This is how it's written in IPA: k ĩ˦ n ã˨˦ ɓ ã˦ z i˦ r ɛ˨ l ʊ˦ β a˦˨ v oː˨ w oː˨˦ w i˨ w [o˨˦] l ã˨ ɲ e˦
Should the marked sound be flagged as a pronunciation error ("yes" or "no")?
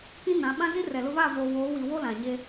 yes